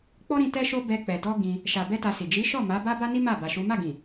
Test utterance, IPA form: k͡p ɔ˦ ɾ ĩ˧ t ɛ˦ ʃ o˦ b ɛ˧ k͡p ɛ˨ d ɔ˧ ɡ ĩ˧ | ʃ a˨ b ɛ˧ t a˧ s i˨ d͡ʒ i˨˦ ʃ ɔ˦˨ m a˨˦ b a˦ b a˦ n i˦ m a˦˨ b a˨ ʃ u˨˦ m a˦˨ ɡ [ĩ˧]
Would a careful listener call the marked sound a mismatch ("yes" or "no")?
yes